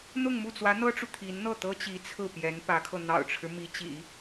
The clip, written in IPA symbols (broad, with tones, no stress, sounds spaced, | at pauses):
n̪ ʊ˥˧ ŋ m u˥˩ t͡s w ä˧˥ n̪ ɤ˥ ʈ͡ʂ u˨ t̪ʰ i˧˥ n n̪ ɤ˥˩ t̪ ɤ˥ t͡ɕ i˧˥ t͡sʰ ɹ̩˥˩ p j ɛ˧˥ n p ä˧˥ kʰ ɤ˧ n̪ ɑ̰˨˩ ʊ̯ ʈ͡ʂʰ ɻ̩˦ m i˧˥ t͡ɕ ḭ˨˩˦